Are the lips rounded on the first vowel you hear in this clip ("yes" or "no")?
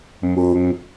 yes